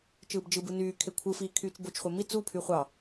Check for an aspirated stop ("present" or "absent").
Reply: present